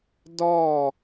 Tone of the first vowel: falling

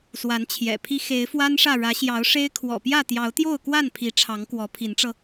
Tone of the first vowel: rising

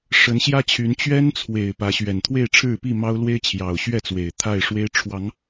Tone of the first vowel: rising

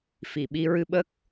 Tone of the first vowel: low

